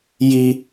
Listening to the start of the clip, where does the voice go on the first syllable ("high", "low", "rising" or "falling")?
high